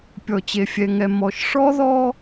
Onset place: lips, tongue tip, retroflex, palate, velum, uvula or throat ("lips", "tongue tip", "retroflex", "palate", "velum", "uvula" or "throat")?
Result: lips